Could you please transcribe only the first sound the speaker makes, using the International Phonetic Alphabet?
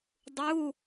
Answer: dˤ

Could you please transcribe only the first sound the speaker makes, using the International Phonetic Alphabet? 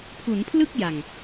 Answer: pʰ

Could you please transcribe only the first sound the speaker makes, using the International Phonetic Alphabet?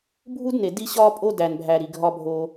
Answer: bʱ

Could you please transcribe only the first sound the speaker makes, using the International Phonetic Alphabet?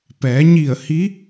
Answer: p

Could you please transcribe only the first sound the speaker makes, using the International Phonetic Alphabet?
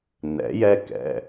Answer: n̪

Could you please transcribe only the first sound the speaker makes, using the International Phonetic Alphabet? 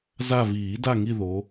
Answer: z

